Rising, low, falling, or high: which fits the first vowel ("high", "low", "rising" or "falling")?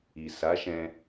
low